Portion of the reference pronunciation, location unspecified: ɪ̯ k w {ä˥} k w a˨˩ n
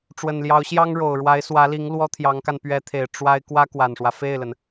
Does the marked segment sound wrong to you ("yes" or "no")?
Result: no